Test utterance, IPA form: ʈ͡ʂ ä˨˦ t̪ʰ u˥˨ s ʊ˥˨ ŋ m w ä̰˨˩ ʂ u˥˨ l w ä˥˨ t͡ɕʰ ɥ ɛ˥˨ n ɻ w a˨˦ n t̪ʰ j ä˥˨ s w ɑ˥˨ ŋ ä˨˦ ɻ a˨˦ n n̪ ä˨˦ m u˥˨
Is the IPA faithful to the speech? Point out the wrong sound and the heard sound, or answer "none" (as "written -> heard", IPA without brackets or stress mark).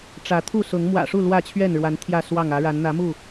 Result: ʊ˥˨ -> ʊ˨˦